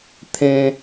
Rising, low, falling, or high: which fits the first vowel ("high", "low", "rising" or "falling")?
high